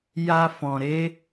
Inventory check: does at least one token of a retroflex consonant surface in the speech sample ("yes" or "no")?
no